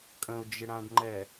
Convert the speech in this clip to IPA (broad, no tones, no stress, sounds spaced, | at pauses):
kʼ ə̃ ʊ̯ d͡ʒ ɪ ɽ ã ɖ ŋ͡ǃ ɛ